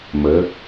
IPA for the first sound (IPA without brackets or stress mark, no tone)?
m